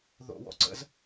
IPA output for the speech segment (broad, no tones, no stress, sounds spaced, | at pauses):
ð o̰ w ɔ̰ ǀ ə̰ z